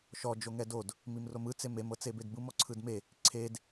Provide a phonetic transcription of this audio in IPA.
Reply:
ʃ ɔ d͡ʒ o ŋ ɛ d o d | m i m r o m ɯ t͡s e m e m ɤ t͡s e b e d b ɯ m ɔ ǀʰ ɯ d m e | ǀʰ e d

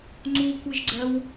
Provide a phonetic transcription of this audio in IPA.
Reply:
ŋ͡ǀ u kʷ i ʒ ɡ͡ǀ ɜ w

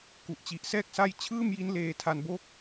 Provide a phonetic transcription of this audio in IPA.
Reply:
k u˨˩ ʔ t͡ɕ i˨˩ ʔ s ɛː˥˩ k̚ s a˥˩ j t͡ɕʰ ɯː˥˩ m j i˦˥ n l eː˧ tʰ a˧ n b o˥˩ k̚

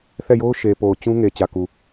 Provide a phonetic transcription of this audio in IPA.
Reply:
θ ɛ˦˨ j o˦ ʊ̯ ʃ e˨ p o˨ ʊ̯ t͡ɕ ũ˦ ŋ e˨ t͡ɕ ä˨ k u˨

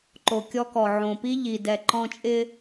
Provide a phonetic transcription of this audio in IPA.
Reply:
ǃ o˨ kʲ ɔ˦ k ɔ˨ ʕ õ˨ p i˦ ʎ i˨ d ɛ˨ ǃ ɔ̃˦ t͡ʃʼ ɪ˦

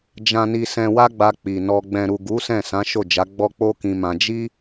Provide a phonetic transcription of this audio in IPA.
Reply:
d͡ʒ ã˨ n i˨ s ɛ̃˨ w a˧ ɡ͡b a˧ k͡p i˨ n ɔ˧ ɡ͡b ɛ̃˨ ɾ u˨ ɡ u˨˦ s ɛ̃˦˨ s ã˨˦ ʃ o˦˨ d͡ʒ a˨˦ ɡ͡b ɔ˦ k͡p o˦ k ĩ˧ m ã˧ d͡ʒ i˦

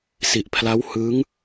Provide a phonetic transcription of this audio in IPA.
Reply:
s i˨˩ ʔ pʰ l a˦˥ w h ɯː˦˥ ŋ

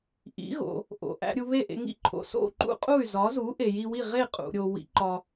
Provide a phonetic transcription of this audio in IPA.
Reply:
ʔ ḭ˩˥ ɣ o̰˩ | ʔ o̰˩ ʔ æ̰˧ ɾʲ u˧ β e˥˩ ʔ ḛ˧ ŋ ḭ˥ ǃʰ o̰˩ s o̰˥˩ ǃ ṵ˥ qʼ u˥˩ y̯ z ɒ˩˥ z u˩˥ ʔ e˩ j i˧ w i˥˩ ʁ e˥˩ qʼ ṵ˩ ɾʲ o˩ w ḭ˩˥ ǃ ɒ˩

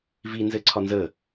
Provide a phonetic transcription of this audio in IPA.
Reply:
v i n z ɘ ǀʰ ɒ n z ə

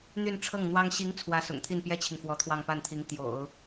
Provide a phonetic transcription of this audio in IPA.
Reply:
n̪ y˥˧ n ʈ͡ʂʰ ɤ˥˩ ŋ n̪ w ɑ˥ ŋ ɕ i˧˥ ŋ t͡sʰ w ä˥ s ʊ̰˨˩ ŋ t̪ʰ i˥˩ n p j ɛ˥ t͡ɕʰ i˨ ŋ f w ɔ˧˥ t̪ʰ w ɑ˥˧ ŋ p a˥˩ n t̪ʰ i˧˥ ŋ t̪ j o̰˨˩˦ ʊ̯

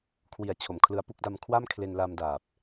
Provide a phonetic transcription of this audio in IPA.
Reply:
kʰ w i˨˩ a̯ t͡ɕʰ o˩˦ m kʰ l ɯ˧ a̯ p u˥˩ k̚ d a˧ m kʰ w a˥˩ m kʰ l e˧ n l a˧ m d aː˨˩ p̚

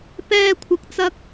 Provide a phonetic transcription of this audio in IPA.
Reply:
p ɛː˧ kʷʰ ɐ˨ k̚ t͡s ɐ˧ k̚

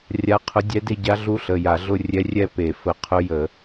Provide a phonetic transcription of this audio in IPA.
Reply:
rʲ a˧˥ qʰ ʊ˧˥ dʲ ɛ˧˥ d e˥˧ ɟ a˧˥ ɮ u˧˥ ɬ ə˩˧˩ j a˧˩˧ ɮ ʊ˥˧ rʲ ɛ˧˥ rʲ ɛ˥˧ p e˧˩˧ f ə˧˩˧ qʰ ʊ˧˥ j ə˧˩˧

